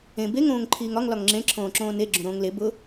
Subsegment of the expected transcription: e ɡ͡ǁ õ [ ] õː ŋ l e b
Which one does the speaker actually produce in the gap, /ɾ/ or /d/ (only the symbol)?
ɾ